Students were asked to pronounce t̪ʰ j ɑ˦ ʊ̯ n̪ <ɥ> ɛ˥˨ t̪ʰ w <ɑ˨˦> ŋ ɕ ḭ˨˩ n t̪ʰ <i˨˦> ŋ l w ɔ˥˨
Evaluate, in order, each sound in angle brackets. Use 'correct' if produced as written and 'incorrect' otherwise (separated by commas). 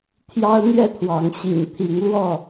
correct, correct, correct